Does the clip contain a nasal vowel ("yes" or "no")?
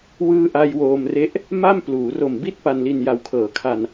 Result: no